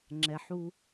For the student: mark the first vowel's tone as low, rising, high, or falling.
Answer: low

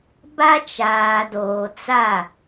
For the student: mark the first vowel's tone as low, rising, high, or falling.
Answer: high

